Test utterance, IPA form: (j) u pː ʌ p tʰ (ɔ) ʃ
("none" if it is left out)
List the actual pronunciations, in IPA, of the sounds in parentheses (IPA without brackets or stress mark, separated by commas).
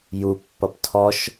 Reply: j, ɔ